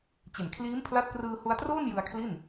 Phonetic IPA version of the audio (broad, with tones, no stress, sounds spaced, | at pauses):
t͡ɕ e˨˩ n kʰ l iː˦˥ m pʰ l a˦˥ t̚ k r ɯː˧ h u˧ a̯ t r oː˥˩ n j ɯ˧ a̯ kʰ l i˥˩ n